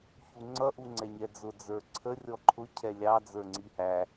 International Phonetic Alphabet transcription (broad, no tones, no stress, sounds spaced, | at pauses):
ç u ŋ͡ǀ ʌ ʔ u ŋ͡ǀ ɛ ɲ ɛ d͡z ʊ d͡z ə˞ ǀʰ ə rʲ ɔ ǃʰ ʊ cʰ ɛ lʲ ɑ d͡z ə˞ ŋ͡ǀ i h æ